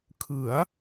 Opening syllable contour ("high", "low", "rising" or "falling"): rising